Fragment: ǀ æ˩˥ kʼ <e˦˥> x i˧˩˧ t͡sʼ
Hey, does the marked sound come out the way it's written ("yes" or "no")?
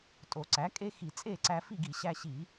yes